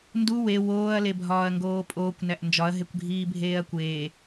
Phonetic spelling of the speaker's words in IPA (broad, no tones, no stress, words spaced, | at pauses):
ndu we woːɐ̯lebʱɒːɐ̯ŋɡoː pʼoːkʷnæʔ nd͡ʒɒɐ̯ɦekʷɡʱiː bʱeːɐ̯kʷeː